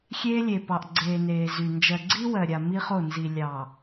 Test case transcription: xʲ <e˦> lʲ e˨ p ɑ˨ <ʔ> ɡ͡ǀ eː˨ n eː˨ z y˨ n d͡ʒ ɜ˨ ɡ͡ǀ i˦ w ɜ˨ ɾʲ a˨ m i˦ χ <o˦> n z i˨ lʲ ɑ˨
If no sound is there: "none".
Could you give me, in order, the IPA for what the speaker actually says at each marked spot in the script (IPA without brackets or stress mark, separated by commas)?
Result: eː˦, ʔ, o˦˨